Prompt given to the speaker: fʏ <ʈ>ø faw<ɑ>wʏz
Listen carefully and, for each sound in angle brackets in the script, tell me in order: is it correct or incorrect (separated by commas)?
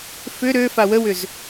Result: incorrect, incorrect